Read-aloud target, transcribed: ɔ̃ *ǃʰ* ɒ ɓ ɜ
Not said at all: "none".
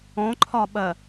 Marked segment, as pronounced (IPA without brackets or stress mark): ǃʰ